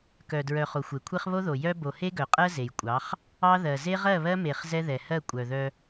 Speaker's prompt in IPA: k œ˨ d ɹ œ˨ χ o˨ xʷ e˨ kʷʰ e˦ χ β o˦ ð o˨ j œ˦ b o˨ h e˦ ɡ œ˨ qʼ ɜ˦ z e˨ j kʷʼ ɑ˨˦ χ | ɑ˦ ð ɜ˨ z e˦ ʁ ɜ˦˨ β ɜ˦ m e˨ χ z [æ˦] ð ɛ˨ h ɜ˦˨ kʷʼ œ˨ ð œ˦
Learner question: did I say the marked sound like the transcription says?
no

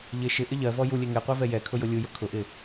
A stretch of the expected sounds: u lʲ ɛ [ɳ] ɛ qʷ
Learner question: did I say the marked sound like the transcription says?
no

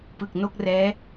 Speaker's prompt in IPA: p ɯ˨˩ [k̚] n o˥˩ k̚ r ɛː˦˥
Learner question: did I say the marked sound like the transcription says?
yes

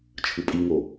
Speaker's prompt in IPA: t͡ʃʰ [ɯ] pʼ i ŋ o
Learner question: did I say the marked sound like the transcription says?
yes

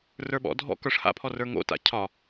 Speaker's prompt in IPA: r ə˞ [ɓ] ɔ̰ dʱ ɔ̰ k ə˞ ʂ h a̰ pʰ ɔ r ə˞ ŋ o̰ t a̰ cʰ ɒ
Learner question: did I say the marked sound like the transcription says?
yes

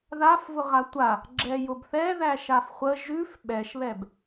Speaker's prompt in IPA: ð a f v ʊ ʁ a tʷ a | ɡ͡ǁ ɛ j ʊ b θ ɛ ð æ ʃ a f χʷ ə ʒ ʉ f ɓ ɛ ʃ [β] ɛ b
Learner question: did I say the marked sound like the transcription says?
yes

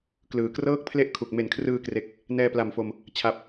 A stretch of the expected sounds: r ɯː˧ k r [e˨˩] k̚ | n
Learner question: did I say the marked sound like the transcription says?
yes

